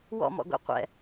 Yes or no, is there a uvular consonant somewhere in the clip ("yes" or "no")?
yes